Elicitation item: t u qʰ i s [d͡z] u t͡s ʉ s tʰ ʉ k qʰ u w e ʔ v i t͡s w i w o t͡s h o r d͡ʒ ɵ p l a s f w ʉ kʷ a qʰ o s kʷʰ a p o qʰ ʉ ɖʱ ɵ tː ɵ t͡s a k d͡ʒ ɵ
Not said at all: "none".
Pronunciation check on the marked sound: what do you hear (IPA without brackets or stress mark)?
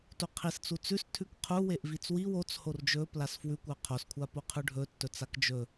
t͡s